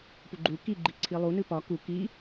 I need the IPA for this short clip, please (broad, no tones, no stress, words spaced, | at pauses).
puɡ͡ǃu kiɡ͡ǃi ǀʰilˠunɨ pɒ ku ki